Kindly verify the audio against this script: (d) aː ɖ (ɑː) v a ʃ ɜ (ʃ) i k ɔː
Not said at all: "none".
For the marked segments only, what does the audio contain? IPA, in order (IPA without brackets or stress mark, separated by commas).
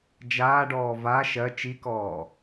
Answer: d͡ʒ, ɔː, t͡ʃ